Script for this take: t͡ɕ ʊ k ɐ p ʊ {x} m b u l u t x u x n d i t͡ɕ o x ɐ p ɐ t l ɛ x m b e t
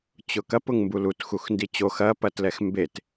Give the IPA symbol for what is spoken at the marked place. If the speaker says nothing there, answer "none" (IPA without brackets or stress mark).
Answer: ŋ